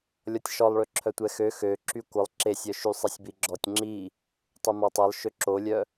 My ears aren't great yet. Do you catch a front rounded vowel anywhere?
yes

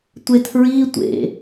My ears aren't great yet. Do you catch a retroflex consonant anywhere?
no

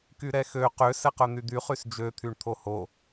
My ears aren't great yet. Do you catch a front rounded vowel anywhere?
yes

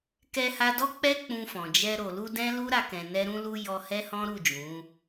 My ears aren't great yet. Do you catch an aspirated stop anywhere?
no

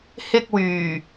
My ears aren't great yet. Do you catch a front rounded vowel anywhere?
yes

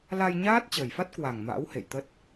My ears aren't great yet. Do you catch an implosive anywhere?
no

